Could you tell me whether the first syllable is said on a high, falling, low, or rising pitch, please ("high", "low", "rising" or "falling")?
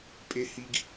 low